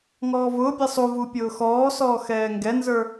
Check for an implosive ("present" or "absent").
absent